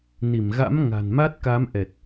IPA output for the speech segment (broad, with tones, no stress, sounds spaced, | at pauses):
n i˧˩ m ɣ a̰˧˥ m ŋ a̤˨˩ n m a˦˥ t̚ k a˨˦ m ʔ ɛ˨˩ t̚